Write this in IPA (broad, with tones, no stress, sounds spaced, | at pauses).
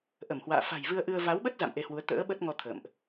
ʔ ə˧˩ m h w a̰ː˧˨ f a̤˨˩ j v ɨ˧ ə̯ ʔ ɨ˧ ə̯ v a˨˦ w ɓ ə˦˥ t̚ z a̰˧˨ m ʔ e˧ h w u˨˦ ə̯ t̪ ə̰ː˧˥ ɓ ə˦˥ t̚ ŋ ɔ˧ t̪ʰ ə̰˧˨ m ʔ